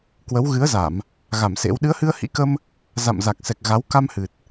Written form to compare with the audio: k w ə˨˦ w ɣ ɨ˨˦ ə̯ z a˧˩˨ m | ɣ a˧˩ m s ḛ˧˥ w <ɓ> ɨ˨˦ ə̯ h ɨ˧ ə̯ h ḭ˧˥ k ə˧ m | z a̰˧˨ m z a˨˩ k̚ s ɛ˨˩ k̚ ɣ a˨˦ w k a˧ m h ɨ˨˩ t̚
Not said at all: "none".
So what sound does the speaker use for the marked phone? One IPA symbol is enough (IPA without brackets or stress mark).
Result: ɗ